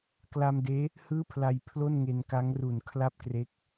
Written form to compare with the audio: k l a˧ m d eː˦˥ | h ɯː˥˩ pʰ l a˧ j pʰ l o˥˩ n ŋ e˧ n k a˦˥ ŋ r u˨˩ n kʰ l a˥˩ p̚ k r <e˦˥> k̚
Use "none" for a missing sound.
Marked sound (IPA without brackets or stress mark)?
e˦˥